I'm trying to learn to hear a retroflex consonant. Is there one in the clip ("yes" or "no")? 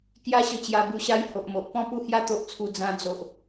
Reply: no